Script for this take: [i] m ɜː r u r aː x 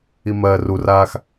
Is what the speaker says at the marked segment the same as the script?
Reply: yes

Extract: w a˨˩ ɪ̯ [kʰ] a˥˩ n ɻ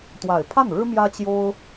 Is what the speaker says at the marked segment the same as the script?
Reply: no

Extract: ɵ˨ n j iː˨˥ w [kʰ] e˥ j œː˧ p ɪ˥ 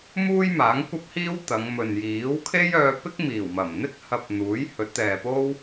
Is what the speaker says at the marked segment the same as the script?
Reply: yes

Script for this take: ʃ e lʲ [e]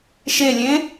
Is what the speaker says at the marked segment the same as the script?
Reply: no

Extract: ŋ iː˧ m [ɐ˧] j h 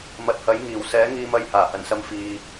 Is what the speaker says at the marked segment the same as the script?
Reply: yes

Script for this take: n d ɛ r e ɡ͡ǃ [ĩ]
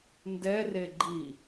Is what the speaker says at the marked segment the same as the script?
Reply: no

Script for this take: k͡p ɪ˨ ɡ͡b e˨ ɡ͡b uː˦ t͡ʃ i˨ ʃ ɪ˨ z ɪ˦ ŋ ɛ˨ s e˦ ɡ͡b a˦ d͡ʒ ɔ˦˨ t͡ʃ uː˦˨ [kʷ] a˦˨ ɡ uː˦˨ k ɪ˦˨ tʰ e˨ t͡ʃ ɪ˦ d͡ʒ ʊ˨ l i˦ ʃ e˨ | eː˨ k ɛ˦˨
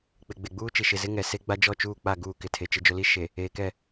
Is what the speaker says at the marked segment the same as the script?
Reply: no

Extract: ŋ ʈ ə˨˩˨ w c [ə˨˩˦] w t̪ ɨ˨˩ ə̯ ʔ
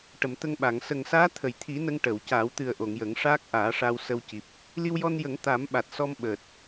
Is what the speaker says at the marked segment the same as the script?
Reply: no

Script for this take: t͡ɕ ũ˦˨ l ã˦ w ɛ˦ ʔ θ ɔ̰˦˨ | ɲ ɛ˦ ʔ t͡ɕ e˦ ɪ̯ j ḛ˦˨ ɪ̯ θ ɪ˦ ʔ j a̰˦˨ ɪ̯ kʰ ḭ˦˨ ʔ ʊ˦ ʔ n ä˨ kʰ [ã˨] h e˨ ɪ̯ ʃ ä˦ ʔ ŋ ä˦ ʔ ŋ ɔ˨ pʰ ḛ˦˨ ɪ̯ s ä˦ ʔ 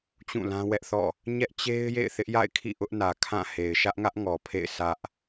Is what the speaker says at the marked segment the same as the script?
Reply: no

